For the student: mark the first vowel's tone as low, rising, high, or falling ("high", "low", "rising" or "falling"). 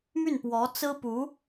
falling